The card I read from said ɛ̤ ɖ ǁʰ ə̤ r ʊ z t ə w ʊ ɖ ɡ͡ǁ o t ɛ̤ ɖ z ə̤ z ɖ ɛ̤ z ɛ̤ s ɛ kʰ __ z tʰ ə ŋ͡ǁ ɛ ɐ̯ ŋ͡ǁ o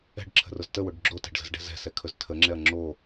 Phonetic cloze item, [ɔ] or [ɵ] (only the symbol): ɵ